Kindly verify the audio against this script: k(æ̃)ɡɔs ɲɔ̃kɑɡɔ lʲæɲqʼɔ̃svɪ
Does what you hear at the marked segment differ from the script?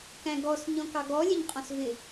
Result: no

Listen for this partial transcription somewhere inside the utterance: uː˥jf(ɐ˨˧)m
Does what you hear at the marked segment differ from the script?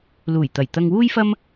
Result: yes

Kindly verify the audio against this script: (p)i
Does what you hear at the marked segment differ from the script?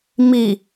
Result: yes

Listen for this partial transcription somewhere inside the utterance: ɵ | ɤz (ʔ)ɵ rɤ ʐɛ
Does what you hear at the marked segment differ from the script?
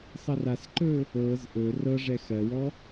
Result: no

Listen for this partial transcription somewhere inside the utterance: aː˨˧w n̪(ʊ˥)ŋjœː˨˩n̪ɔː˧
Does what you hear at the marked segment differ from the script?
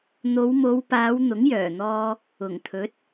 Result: yes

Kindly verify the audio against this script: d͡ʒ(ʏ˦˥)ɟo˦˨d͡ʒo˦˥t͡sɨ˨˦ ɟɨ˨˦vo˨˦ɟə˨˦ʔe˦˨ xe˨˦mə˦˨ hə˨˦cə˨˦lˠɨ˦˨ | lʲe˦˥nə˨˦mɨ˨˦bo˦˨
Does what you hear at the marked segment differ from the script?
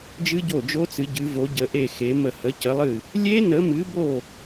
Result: yes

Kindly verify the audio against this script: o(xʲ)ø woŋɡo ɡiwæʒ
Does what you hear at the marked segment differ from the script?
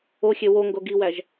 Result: no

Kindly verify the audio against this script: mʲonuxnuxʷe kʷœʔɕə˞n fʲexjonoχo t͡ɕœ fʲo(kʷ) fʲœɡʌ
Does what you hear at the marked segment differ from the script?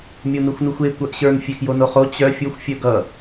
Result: yes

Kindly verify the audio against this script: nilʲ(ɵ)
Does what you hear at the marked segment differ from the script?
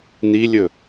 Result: no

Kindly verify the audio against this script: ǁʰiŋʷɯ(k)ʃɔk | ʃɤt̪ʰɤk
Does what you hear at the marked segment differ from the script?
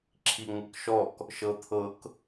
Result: no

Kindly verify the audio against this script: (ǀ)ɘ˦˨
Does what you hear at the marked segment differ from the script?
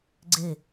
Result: yes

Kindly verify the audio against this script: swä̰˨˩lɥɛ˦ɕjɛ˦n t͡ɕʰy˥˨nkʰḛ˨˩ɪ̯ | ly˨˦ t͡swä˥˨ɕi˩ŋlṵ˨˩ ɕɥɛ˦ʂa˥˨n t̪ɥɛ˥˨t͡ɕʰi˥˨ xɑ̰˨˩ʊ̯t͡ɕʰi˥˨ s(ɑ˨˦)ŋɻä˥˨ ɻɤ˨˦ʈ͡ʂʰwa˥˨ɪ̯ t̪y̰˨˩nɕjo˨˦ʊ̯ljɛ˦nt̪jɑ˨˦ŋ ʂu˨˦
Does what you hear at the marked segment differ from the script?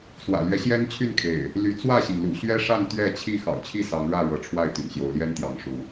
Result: no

